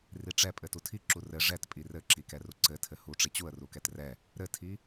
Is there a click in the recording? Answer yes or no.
yes